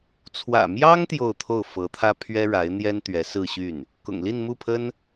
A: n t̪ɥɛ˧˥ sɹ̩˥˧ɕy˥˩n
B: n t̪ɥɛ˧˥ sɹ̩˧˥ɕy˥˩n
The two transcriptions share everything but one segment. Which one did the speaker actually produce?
A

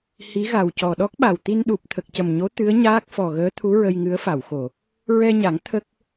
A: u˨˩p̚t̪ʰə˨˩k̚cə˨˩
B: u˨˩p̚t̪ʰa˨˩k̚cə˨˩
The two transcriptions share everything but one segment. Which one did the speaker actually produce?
A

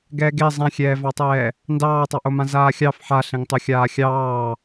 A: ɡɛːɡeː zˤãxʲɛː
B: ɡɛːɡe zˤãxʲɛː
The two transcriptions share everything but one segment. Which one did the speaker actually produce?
B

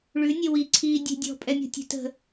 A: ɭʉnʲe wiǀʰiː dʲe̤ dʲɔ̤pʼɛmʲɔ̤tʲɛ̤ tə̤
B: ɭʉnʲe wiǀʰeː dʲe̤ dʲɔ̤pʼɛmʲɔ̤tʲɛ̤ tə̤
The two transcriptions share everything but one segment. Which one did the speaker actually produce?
A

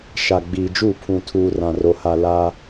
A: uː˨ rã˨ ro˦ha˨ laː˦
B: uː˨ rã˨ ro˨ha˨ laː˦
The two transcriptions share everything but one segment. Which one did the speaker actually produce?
B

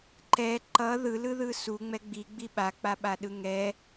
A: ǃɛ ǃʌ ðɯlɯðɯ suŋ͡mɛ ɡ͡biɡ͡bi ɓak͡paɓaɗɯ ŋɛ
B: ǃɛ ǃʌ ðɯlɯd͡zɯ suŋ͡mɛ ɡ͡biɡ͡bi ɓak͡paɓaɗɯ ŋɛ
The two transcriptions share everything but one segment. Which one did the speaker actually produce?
A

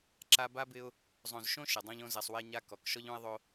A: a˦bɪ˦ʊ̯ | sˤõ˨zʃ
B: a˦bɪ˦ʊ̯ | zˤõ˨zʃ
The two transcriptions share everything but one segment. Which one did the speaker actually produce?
B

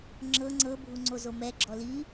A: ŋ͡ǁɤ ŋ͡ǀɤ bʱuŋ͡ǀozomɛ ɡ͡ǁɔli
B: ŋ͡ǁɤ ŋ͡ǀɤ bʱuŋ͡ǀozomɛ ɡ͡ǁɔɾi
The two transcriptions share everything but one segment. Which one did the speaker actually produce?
A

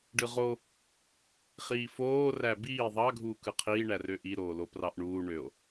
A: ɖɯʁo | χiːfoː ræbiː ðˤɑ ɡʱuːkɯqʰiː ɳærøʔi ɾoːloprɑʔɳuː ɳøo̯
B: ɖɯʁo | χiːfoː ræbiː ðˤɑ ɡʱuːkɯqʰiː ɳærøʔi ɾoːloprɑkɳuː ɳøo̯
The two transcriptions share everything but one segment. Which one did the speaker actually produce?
A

